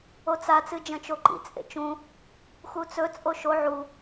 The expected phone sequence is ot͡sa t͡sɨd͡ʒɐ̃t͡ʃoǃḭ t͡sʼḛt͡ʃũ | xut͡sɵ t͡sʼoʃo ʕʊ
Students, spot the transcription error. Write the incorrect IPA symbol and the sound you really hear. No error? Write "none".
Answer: ʊ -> u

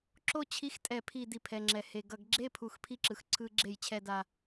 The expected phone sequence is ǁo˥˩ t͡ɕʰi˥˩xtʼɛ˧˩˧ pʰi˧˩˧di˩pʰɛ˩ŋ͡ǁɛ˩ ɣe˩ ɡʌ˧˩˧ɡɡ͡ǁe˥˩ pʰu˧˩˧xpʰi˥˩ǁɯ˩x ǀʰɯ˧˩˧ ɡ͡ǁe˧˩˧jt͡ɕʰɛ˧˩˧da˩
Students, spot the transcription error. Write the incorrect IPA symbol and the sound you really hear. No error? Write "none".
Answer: ɣ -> h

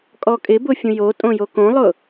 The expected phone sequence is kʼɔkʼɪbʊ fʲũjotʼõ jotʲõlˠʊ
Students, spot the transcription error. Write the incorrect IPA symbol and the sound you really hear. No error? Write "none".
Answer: tʲ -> k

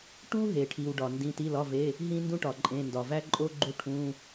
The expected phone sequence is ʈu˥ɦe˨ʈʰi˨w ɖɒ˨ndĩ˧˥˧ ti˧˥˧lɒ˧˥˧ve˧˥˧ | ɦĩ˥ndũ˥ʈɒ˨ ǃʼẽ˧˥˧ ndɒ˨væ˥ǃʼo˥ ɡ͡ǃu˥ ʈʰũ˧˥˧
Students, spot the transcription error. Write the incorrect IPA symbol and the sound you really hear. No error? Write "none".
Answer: none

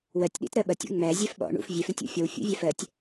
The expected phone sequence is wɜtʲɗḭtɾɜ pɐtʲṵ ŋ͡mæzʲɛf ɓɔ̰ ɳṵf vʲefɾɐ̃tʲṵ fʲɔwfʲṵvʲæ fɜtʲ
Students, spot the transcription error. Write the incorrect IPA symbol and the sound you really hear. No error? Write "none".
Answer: p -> ɓ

